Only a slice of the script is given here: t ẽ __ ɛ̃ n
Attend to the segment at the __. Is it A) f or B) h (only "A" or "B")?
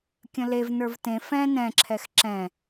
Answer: A